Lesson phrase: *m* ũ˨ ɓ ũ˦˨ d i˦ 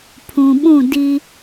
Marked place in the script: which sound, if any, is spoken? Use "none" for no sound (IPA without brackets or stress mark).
pʰ